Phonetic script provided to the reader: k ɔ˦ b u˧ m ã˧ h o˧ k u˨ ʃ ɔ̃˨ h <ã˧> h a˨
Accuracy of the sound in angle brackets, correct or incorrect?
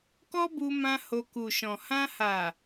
correct